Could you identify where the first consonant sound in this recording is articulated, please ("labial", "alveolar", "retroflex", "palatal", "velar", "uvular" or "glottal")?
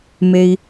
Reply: labial